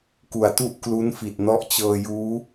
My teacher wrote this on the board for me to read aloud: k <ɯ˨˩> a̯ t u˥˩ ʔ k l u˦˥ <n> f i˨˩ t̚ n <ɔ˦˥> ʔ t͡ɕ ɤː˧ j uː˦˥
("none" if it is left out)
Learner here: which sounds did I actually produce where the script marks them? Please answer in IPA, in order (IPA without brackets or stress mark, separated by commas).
u˨˩, n, ɔ˦˥